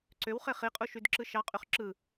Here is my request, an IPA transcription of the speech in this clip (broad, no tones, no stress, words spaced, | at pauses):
ǀøwχe χiqʼu ʃydǁɯʃɑqʼyχ ǁɯ